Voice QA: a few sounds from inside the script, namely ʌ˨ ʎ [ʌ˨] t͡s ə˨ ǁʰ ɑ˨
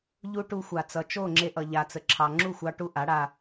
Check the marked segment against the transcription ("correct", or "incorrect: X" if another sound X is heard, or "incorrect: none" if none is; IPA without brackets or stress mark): incorrect: a˨